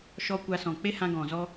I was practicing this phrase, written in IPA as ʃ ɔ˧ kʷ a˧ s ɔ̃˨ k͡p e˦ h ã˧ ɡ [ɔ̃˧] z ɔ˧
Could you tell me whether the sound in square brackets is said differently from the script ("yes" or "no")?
yes